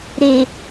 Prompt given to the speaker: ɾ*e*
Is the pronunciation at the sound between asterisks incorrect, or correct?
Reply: correct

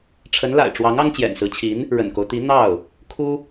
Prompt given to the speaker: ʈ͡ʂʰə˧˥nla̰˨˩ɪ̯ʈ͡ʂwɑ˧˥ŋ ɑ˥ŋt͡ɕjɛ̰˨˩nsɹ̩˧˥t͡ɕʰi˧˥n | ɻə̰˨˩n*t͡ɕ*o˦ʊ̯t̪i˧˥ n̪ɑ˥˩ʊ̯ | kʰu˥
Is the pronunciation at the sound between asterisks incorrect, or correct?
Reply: incorrect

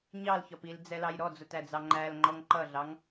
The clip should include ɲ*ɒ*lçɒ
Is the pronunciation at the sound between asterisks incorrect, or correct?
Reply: incorrect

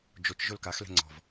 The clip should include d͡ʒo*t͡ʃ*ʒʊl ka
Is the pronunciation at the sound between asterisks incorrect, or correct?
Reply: correct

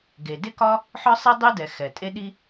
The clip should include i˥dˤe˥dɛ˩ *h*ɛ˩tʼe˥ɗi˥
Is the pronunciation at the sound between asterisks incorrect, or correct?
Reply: incorrect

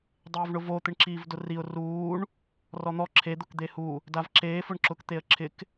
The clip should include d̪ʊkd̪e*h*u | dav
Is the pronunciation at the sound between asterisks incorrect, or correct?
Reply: correct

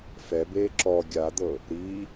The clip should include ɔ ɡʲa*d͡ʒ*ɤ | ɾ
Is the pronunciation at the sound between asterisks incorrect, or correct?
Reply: incorrect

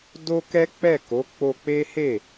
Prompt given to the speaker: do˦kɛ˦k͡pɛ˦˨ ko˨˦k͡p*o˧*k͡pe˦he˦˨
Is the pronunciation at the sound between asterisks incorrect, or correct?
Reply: correct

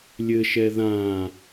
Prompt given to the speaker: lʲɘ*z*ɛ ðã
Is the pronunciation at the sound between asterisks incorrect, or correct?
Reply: incorrect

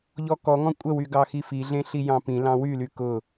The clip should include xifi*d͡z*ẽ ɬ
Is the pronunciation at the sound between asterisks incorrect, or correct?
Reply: incorrect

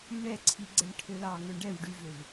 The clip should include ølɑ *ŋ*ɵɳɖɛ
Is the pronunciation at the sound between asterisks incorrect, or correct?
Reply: correct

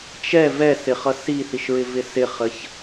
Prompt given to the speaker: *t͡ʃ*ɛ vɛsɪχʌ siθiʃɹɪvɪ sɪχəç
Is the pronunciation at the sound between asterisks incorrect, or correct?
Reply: correct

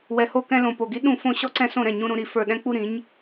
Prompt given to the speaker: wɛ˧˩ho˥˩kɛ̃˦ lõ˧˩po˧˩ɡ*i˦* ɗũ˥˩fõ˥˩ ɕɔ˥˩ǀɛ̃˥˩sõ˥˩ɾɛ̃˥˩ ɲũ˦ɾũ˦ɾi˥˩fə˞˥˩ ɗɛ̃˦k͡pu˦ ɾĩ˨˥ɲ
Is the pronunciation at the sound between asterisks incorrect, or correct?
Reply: correct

